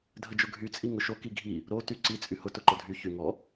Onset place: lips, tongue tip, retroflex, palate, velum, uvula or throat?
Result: tongue tip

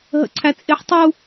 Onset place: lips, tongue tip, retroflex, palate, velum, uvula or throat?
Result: throat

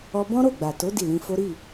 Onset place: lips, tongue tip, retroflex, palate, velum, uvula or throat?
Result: lips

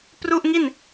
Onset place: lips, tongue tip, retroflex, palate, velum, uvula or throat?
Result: lips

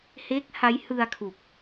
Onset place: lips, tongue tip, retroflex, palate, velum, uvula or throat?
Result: throat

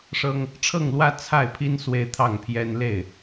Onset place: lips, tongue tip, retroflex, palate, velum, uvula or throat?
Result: retroflex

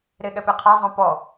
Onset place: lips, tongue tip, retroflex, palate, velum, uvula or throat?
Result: tongue tip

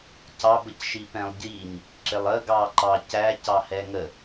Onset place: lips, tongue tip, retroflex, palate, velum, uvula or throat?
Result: palate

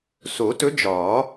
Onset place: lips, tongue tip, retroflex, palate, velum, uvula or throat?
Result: tongue tip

